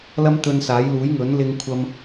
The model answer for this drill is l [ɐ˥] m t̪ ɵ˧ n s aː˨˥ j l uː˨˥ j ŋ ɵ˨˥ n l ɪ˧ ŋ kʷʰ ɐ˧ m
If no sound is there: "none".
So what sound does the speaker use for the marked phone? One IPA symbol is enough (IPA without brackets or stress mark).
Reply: ɐ˥